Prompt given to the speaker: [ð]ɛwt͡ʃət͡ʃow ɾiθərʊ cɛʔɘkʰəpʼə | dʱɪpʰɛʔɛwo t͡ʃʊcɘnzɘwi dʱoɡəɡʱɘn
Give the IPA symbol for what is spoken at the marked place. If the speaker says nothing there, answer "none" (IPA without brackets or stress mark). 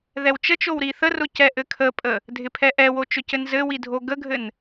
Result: ð